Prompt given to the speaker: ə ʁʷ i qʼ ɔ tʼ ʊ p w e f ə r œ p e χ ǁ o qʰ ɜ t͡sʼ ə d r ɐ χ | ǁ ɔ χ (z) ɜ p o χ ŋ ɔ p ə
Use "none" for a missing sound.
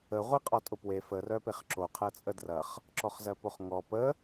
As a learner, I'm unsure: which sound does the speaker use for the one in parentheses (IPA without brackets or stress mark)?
z